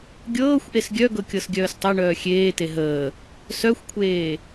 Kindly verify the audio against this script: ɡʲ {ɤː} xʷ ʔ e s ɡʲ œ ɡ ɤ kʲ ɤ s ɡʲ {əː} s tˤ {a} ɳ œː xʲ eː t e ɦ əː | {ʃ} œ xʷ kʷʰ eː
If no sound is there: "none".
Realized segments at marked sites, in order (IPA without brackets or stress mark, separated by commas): ɤː, œː, a, s